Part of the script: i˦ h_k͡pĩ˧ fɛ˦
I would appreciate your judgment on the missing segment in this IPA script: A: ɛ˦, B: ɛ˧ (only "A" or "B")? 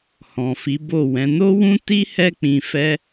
A